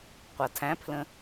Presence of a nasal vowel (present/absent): present